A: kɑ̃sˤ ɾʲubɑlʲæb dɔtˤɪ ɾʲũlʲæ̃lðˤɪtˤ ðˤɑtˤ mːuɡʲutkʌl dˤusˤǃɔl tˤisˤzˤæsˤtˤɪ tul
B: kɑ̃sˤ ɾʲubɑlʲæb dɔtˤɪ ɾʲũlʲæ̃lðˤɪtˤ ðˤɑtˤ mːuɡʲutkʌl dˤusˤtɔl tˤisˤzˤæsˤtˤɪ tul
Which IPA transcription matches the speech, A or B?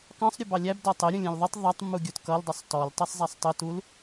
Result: B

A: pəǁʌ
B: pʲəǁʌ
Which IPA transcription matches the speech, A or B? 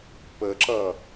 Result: A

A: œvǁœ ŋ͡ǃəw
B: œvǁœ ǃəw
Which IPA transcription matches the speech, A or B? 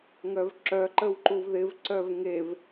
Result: B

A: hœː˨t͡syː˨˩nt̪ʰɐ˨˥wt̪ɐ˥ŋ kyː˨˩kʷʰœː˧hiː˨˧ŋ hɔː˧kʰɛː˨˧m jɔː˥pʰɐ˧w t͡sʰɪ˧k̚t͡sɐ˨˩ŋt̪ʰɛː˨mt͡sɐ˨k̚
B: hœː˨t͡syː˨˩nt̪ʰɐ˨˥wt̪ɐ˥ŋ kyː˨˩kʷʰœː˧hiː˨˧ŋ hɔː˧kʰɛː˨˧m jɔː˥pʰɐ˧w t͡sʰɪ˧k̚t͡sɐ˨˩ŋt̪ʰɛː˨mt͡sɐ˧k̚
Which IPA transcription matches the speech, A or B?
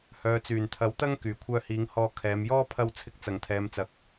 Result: A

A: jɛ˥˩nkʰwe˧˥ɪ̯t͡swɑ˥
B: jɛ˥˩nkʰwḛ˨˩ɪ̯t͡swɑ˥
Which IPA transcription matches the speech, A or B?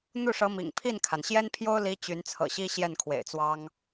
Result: B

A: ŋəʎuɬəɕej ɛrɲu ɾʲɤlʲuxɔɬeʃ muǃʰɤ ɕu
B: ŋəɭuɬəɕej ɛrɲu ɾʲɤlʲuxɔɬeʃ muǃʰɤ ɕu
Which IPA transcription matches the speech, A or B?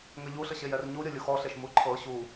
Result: A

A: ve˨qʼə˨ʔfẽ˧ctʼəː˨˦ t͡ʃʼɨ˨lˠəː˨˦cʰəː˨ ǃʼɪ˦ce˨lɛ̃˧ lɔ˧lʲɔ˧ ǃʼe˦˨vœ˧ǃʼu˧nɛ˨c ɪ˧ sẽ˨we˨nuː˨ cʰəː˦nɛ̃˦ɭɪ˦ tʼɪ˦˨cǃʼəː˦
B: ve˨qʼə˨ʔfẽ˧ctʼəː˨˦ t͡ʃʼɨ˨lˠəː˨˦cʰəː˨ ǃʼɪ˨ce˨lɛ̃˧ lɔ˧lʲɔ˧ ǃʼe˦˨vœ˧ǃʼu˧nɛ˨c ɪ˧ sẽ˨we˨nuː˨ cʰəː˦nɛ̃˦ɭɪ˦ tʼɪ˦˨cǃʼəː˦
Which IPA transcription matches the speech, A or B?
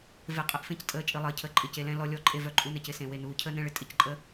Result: B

